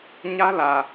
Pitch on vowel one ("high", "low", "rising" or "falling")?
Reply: high